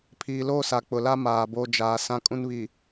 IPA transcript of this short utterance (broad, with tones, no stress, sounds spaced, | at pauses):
pʰ iː˨ l oː˦ s a˨ k͡p ʊ˨ l a˦ m aː˨ b o˨ d͡ʒ aː˨ s ã˦ kʼ ũ˦ n β i˨